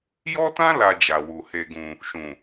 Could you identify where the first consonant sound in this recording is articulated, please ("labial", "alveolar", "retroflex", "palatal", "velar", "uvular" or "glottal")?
palatal